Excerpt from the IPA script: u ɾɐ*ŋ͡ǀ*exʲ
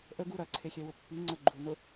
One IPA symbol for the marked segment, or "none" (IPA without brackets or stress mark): ǀʰ